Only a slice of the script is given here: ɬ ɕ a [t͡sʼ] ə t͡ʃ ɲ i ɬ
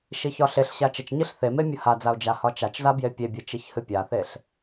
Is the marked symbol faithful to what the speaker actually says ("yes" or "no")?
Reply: no